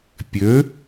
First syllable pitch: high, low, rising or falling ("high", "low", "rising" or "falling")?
rising